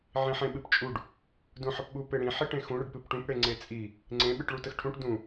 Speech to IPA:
ʕ ĩ ħ ẽ ɓ ɨ p t͡ʃʼ u ɖ | d ũ ħ ə p ɓ u p e ɽ ĩ ħ i ʈ ẽ x ũ ɽ ə ɖ p ɨ p ʈ ũ p ɽ e ŋ͡ǀ e t͡sʼ i | ŋ͡ǀ ẽ ɓ ɨ ʈ ɭ u t ə x ʈʰ ũ ʈ d ũ

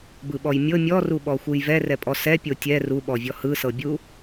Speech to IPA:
b ɯ ɓ ɔ j mʲ ɤ mʲ ɔ r u ɓ ɔ xʷ ɯ j v ɛ r ɛ pʼ ɔ s ɛ pʲ o tʲ ɛ r u ɓ ɔ vʲ ɔ h ɯ s ɤ bʲ u

